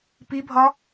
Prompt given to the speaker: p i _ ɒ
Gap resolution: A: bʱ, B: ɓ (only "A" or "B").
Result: A